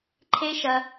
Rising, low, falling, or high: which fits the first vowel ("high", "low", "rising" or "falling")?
high